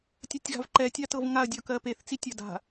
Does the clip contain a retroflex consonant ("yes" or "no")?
no